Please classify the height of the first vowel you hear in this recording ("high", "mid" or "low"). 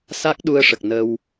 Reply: low